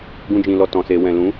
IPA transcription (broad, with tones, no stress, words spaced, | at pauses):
ɡũ˧d͡ʒĩ˨lɔ˨ tɔ̃˨se˨wɛ̃˨ lũ˨˦